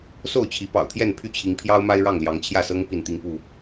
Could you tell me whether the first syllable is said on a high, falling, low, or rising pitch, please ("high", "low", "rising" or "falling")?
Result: falling